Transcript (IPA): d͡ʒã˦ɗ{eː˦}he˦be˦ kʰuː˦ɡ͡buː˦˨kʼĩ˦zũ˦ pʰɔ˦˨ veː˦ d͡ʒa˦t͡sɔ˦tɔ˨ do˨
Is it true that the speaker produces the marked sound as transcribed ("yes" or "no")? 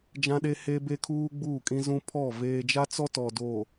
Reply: no